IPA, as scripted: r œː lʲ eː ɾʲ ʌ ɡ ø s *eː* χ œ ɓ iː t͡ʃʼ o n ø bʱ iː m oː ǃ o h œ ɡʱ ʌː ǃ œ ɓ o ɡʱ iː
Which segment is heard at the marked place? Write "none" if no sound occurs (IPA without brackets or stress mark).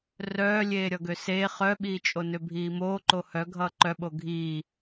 eː